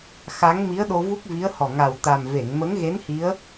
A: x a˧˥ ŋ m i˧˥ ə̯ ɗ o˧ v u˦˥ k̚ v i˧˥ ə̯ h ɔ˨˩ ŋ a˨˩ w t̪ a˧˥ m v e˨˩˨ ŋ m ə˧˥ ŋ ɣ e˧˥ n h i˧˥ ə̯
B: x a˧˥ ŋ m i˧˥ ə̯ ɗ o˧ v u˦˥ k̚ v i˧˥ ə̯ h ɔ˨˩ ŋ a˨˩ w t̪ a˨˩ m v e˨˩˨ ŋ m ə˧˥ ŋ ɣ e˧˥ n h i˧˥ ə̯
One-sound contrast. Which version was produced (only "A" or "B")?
B